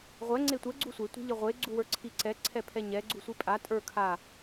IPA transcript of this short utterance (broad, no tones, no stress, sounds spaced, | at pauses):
ʁʷ ɛ ŋ͡ǀ e tʷ ɛ ɡ͡ǀ u sʷ e tʷ ɛ̤ ʎ ə ʁʷ e ɡ͡ǀ u w ə˞ ǀʰ i ǀ ɛ ǀʰ ɛ pʰ ɛ ɲ ɛ ɡ͡ǀ u sʷ i pʼ a tʼ ə˞ kʰ a